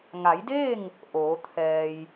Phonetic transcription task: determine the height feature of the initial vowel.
low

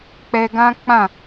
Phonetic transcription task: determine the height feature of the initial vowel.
mid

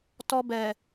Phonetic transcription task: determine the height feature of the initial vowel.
mid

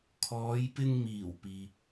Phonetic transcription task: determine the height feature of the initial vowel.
mid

